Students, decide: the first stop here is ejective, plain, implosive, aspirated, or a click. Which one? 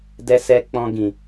plain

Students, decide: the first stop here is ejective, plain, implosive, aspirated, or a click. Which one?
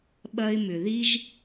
implosive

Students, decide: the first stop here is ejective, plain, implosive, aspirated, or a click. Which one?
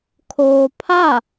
aspirated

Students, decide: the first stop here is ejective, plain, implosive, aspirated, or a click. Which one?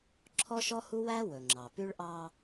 click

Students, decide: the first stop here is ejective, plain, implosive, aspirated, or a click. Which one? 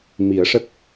plain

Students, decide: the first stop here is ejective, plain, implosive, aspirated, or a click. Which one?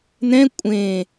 ejective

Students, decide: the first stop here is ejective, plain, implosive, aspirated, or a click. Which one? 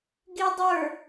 plain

